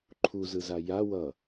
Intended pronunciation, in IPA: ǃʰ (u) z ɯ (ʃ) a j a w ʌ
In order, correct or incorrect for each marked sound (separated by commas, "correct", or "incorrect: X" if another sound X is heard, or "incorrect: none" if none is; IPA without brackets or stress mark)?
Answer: correct, incorrect: z